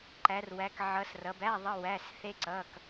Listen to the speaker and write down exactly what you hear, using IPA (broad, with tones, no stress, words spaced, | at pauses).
ǃæ˨˦rwæ˨˦k ʕʌ˨˦srʌ˨˦bæ˧˥˧ ðˤʌ˧˥˧ wæ˧˥˧sθe˦˥ǀʌ˧˥˧k